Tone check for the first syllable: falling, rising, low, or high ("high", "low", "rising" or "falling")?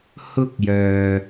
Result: high